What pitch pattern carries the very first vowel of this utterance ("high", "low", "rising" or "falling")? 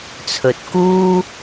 low